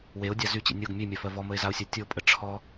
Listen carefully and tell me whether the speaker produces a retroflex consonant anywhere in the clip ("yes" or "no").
yes